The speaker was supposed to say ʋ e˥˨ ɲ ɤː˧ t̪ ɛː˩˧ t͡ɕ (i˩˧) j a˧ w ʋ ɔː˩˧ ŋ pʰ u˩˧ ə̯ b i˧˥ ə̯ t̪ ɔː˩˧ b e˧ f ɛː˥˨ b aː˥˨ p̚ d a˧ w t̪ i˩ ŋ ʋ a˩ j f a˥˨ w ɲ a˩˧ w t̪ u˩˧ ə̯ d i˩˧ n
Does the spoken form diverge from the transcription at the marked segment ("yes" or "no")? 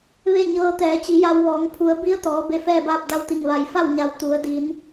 no